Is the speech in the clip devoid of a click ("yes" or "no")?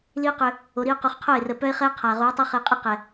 yes